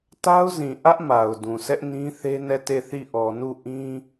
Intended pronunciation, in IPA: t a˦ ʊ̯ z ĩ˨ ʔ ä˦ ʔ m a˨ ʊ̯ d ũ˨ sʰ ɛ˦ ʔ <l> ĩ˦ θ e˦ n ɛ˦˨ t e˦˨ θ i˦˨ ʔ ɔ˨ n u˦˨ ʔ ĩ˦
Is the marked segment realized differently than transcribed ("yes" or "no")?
yes